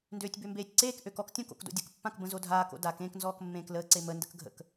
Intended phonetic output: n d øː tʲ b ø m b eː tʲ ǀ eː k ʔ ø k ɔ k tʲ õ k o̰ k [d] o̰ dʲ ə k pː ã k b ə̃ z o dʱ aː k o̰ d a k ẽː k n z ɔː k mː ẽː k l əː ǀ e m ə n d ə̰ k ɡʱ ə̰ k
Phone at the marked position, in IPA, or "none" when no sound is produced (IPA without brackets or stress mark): d